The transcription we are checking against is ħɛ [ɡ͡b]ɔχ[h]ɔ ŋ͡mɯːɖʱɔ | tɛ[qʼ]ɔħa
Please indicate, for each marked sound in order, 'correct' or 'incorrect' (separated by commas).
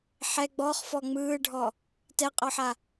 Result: correct, incorrect, correct